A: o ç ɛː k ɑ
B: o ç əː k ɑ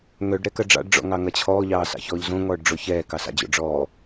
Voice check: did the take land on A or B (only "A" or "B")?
A